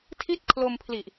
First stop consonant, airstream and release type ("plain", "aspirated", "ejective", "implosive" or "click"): aspirated